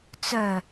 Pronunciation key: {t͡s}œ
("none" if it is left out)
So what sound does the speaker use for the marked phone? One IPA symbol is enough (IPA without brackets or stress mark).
t͡s